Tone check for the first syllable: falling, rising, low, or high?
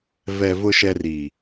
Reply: low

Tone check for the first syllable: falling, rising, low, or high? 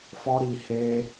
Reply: high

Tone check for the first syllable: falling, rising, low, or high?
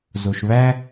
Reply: low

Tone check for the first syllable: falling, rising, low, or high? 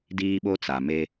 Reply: high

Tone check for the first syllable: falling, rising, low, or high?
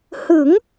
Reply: rising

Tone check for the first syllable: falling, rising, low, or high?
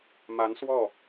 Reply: rising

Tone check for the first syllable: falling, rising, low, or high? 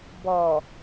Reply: low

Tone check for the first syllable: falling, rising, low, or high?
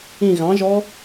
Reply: falling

